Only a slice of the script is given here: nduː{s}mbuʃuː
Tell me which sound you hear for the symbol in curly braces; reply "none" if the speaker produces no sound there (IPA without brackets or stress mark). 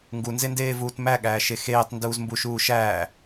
z